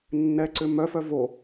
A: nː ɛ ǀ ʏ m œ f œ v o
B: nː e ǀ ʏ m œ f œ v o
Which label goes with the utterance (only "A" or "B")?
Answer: A